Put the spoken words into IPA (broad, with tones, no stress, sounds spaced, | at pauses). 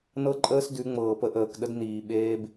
n ɤ˦ ǃʼ əː˦ s d ʉ˨˦ ŋ͡m ɤː˨ p ə˦ ʔ əː˨ k ɗ ə˦ d n iː˨ ɓ eː˦ b